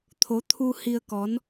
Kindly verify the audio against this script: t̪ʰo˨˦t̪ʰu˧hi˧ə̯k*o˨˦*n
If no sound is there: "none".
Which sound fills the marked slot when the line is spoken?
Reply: ɔ˨˦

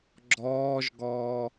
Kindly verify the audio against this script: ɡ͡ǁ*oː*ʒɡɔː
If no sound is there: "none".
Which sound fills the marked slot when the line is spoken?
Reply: ɔː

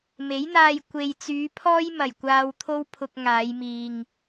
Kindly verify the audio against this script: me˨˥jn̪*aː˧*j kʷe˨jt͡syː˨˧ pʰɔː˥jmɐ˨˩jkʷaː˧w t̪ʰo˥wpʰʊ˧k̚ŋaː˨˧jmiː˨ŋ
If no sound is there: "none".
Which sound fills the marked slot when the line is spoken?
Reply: aː˧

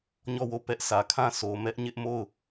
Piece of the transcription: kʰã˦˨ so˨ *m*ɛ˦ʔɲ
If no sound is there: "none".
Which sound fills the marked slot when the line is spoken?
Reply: m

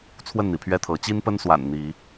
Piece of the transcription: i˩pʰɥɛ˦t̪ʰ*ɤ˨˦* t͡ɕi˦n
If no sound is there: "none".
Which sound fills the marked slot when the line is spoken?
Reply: ɤ˨˦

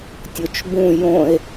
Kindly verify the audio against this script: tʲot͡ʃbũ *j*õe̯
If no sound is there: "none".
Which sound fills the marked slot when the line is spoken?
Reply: j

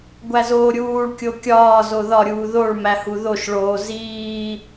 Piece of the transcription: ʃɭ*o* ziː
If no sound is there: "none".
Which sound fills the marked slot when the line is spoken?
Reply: oː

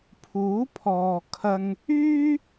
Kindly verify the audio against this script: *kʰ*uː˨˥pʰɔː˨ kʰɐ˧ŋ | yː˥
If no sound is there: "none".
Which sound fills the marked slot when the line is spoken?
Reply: pʰ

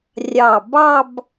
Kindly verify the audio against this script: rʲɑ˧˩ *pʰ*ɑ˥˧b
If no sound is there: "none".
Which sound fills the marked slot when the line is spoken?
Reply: b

